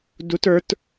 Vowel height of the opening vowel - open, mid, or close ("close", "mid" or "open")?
close